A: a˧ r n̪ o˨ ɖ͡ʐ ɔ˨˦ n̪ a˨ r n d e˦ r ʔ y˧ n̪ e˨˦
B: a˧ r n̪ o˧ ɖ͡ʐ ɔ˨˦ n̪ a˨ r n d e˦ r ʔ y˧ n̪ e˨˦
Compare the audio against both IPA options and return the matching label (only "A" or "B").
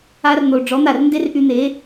A